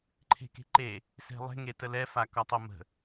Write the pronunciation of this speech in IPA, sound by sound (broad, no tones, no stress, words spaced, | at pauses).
ǃʰe̤ke̤ǃe | se̤lˠe̤ ŋetəlɛ fakɒtˤʌmə̤